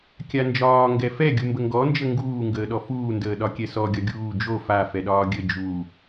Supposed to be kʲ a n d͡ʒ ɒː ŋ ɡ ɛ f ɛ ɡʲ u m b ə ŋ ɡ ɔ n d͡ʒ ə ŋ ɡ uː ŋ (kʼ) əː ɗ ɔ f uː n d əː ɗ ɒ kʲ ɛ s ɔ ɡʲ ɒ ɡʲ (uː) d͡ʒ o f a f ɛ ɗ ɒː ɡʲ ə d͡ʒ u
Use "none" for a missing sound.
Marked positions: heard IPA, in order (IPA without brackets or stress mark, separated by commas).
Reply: ɡ, uː